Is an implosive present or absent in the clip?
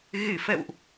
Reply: absent